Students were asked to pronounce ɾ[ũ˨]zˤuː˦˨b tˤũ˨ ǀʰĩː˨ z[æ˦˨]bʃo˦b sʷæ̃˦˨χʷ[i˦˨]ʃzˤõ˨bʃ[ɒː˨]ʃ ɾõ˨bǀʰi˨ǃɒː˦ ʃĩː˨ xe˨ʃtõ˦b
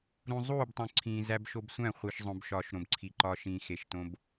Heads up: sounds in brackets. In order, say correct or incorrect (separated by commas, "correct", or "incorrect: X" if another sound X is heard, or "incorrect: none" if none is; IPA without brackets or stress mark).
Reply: correct, incorrect: æ˦, incorrect: i˨, correct